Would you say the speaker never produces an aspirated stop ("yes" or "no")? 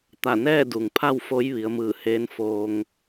no